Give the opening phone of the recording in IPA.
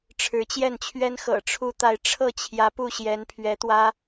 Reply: ʈ͡ʂʰ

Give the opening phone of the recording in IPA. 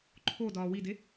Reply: ǃʰ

